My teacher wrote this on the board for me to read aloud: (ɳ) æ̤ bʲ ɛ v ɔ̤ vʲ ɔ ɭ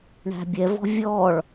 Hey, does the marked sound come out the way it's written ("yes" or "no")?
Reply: yes